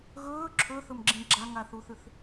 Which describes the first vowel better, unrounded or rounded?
rounded